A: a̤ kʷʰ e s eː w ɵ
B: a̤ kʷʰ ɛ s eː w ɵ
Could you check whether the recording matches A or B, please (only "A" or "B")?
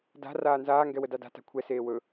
B